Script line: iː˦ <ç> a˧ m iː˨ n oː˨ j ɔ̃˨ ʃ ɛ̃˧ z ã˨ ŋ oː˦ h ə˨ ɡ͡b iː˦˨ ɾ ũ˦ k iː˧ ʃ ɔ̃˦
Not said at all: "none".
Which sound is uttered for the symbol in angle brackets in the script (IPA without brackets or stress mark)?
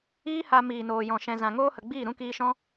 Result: h